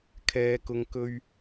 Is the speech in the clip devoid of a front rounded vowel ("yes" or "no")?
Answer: yes